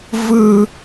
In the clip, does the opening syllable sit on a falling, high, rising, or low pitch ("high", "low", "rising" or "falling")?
high